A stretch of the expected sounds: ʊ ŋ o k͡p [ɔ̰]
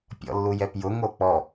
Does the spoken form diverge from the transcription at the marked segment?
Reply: yes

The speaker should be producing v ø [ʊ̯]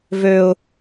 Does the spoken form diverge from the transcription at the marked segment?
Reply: no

